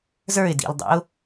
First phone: z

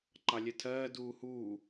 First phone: ǃ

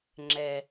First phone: ŋ͡ǁ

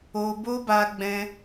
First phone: o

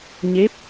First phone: ɲ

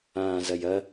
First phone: ãː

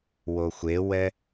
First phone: w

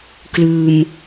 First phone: k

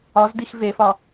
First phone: ɒ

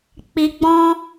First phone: k͡p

